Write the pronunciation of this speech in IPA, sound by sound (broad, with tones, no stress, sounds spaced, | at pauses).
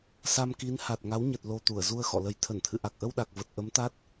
s a˧ m k i˨˦ n h a˨˩ t̚ ŋ a˨˦ w ɲ ə˨˩ t̚ l o˨˩ t̪ u˧˩ ə̯ z u˧ ə̯ x ɔ̰˧˨ l ə˨˦ j t̪ʰ ə˧˩ n t̪ʰ ɨ̰˧˨ ʔ a˨˩ k̚ ʔ ə˧ w ɗ a˨˩ k̚ v ə˨˩ t̚ ʔ ə˨˦ m t̪ a˦˥ t̚